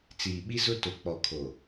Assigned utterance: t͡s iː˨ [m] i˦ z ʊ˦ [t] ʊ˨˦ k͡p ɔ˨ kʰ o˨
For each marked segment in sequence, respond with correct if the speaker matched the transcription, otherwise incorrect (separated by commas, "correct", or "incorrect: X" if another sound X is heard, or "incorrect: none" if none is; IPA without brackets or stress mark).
incorrect: ɓ, correct